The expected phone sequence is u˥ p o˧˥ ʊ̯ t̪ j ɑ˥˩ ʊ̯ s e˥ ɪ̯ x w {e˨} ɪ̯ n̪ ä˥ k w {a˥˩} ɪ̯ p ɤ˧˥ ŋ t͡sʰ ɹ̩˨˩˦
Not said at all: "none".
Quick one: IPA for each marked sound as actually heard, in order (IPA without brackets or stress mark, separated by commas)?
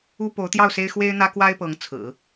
e˥, a˥